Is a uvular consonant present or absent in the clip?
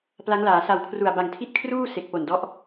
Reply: absent